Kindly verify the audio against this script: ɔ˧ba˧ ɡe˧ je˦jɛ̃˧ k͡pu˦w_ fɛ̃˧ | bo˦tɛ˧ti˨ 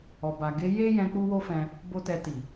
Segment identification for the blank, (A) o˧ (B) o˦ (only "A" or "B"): B